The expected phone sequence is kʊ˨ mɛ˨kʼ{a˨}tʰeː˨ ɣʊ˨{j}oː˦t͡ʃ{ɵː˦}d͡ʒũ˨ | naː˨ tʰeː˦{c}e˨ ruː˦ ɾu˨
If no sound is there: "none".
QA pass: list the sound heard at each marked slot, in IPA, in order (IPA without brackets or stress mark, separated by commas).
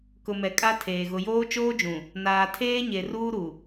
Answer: a˦, j, oː˦, ɲ